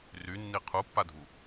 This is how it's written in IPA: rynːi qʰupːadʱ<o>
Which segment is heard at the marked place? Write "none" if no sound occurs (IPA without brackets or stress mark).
u